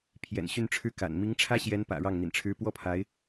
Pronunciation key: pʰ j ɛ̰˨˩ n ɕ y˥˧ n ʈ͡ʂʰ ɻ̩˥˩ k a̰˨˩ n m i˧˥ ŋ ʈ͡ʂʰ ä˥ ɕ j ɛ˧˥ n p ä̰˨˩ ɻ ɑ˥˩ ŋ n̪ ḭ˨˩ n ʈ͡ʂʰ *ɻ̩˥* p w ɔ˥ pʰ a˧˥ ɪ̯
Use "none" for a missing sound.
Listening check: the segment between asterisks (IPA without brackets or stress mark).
ɻ̩˥